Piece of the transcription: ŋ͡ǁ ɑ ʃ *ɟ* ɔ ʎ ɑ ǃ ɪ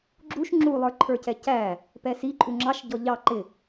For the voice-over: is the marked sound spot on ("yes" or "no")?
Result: yes